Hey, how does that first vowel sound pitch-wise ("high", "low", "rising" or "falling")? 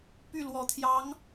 falling